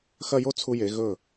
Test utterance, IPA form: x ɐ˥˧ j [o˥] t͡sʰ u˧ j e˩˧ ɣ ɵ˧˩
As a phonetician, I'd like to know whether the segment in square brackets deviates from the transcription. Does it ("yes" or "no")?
no